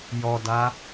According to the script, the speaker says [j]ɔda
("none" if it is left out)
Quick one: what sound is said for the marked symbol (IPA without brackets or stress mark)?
j